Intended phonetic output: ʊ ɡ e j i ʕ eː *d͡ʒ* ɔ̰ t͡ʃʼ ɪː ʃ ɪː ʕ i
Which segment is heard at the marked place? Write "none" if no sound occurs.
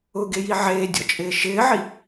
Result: dʲ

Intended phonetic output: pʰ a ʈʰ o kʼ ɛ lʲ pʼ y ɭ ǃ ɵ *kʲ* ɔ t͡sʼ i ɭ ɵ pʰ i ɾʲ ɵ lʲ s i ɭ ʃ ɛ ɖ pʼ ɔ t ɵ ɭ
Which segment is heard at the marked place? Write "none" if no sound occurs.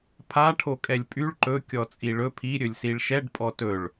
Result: kʲ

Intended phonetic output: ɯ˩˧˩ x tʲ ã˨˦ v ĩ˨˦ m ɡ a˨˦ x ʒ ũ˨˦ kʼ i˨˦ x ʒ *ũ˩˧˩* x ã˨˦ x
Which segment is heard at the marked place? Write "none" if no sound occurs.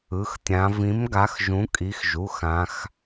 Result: u˩˧˩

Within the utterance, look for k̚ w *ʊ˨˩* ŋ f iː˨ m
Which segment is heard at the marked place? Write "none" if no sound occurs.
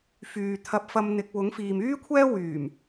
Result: ʊ˨˥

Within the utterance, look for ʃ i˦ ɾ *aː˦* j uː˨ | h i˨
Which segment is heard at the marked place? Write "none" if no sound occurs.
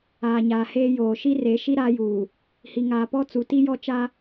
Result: aː˦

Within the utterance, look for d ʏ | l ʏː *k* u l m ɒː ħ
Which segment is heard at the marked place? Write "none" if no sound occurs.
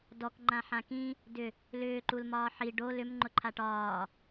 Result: ǃ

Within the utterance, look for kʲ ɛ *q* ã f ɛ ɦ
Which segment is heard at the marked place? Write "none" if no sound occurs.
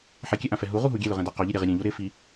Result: ʔ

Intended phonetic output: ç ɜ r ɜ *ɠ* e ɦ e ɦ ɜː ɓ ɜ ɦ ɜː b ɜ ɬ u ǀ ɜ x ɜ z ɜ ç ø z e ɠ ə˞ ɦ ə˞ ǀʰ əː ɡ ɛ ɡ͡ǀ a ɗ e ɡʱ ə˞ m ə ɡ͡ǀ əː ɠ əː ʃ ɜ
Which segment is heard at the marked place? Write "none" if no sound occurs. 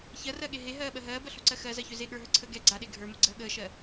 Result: ɠ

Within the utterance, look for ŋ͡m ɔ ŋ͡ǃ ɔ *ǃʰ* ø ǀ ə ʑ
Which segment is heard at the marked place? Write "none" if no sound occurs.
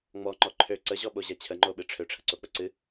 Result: ǃʰ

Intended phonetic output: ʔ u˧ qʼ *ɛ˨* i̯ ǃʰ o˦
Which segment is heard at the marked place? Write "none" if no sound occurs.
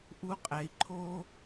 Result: ɛ˨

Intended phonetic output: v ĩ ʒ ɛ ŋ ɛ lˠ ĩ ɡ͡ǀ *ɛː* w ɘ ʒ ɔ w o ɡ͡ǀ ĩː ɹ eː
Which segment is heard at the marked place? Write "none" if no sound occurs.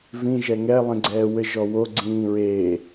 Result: ɛː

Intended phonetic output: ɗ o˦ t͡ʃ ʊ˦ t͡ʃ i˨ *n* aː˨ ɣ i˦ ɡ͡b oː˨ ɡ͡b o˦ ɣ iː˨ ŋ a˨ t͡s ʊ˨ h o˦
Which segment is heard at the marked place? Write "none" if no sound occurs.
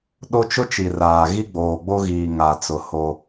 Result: r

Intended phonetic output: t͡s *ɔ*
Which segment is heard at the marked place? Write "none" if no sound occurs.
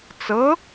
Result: ɤ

